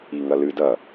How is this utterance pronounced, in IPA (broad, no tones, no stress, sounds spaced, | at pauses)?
i ŋ ɐ l ɨ d ɐ